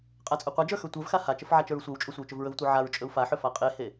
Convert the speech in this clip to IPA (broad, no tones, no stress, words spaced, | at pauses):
qʼat͡sʼɵqʷad͡ʒə˞ xə˞tʷə˞vxa hat͡ʃəf ʕat͡ʃə˞ɹsʷə˞wt͡ʃʼɵ sʷə˞y̯t͡ʃɵvɹɵvtʷə˞ ʕaɹ t͡ʃʼɵu̯faħɵ faqʼehe